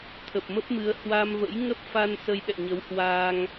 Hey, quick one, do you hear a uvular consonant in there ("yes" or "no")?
no